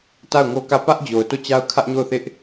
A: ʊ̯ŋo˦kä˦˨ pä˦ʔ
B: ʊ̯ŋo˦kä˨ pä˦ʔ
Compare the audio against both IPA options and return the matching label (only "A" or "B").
A